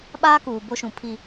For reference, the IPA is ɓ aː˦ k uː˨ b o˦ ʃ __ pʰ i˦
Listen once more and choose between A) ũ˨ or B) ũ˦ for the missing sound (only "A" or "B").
A